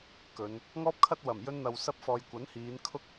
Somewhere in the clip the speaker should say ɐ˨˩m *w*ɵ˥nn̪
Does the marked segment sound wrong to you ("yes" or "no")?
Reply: yes